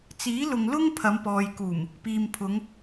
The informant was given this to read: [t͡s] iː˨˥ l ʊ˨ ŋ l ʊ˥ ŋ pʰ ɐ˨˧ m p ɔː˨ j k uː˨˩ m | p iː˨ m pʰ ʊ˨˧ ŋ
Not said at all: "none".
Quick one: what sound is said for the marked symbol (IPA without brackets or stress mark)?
t͡s